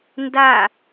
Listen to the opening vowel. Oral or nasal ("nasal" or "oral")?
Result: oral